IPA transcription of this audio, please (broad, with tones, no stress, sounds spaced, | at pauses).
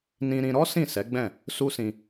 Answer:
n ĩ˧ ɾ ĩ˧ ɾ ɔ˦ s ĩ˦˨ s ɛ˨˦ ɡ͡b ɛ̃˦˨ | s u˦ s ĩ˧